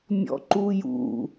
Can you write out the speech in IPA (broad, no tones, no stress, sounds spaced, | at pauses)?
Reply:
mʲ ɔ̰ ǃ u j ṵ